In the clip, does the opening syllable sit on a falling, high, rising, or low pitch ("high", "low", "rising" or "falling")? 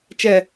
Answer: low